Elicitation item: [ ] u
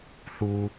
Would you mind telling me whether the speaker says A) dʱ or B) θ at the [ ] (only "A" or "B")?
B